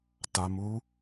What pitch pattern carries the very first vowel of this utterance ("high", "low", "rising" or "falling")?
low